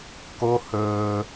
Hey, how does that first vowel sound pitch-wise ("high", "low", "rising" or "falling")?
high